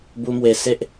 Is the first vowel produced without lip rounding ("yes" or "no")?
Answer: no